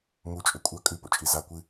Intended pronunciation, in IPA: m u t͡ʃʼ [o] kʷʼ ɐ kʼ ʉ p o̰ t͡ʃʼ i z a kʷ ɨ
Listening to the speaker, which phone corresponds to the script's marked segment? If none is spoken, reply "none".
ɵ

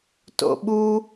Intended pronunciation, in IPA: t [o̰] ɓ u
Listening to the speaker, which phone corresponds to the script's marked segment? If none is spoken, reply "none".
o̰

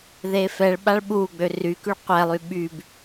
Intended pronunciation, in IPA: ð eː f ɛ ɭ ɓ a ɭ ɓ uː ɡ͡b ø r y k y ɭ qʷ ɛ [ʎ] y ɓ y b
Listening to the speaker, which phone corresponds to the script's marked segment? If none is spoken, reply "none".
lˠ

